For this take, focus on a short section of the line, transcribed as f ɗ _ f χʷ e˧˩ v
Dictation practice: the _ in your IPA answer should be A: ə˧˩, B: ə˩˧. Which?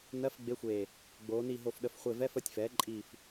A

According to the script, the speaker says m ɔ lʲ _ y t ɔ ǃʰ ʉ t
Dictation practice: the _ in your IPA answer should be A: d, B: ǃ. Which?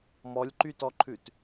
B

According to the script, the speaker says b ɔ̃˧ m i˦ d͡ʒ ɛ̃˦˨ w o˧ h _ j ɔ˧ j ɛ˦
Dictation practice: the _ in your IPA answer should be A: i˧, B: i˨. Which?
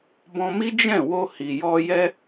B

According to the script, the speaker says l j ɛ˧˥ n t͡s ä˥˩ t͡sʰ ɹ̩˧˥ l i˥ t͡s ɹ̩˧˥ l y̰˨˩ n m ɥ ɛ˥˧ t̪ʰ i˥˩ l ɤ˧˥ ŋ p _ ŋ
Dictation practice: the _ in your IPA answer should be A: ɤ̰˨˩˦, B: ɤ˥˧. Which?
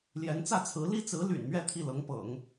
A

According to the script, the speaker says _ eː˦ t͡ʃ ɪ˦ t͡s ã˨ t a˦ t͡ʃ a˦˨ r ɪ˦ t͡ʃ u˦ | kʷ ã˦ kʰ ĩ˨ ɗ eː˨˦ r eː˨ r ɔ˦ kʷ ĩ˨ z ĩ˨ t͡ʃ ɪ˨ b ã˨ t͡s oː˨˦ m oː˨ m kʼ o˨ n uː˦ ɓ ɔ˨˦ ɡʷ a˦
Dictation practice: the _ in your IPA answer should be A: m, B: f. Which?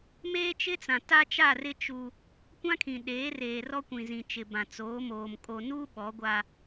A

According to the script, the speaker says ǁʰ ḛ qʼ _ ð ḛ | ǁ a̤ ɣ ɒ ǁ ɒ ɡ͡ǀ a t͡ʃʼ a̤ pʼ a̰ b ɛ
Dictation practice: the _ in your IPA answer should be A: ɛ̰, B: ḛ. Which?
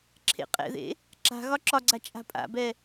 A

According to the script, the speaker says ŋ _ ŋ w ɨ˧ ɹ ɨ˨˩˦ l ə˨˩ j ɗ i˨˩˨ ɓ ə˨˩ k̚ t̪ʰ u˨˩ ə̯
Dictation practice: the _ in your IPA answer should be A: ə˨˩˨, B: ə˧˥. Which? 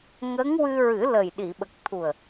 B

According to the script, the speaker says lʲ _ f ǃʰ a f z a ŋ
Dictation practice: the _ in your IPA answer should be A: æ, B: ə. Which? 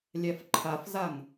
A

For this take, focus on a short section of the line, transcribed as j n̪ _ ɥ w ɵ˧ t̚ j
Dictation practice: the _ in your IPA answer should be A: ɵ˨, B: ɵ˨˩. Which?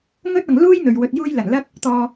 A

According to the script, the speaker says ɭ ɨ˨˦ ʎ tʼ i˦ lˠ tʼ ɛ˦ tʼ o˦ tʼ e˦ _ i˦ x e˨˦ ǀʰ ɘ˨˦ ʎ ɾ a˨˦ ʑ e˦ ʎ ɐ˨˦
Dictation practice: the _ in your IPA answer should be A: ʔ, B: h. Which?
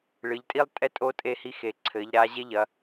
B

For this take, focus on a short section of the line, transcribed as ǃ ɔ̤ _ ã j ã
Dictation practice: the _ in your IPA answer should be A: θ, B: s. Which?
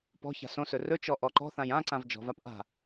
A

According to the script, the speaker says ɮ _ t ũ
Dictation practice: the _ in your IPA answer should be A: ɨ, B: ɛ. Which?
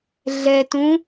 B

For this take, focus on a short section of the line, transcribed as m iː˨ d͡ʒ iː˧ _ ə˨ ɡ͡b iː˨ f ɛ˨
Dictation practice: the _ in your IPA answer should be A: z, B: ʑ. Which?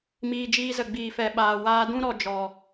A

